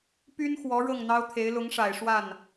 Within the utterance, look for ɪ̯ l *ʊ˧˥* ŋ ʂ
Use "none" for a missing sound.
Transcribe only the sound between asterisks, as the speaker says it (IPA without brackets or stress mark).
ʊ˧˥